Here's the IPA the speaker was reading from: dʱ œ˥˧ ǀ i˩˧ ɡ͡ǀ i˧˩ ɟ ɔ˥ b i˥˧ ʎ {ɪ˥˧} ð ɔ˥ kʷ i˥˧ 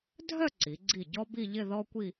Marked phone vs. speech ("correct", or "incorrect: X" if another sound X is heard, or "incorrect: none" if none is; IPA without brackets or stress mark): correct